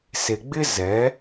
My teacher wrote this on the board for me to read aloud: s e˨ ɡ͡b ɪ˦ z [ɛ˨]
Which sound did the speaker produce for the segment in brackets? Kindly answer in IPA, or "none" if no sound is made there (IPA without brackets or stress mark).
ɛ˨˦